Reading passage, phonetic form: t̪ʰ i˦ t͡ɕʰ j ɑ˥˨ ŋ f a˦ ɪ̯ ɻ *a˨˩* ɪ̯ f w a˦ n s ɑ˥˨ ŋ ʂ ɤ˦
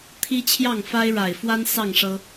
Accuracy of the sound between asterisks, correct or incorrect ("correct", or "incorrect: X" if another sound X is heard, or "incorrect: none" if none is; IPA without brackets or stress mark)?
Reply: correct